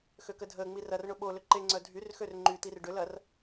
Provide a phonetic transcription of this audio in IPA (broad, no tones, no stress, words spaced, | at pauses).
xøkədʱəːŋ͡mir ɐrɳʊ ɓolʏ ǃeŋ͡ǀœ dʱyrxør ŋ͡ǃyt̪ir ɖʏlɐr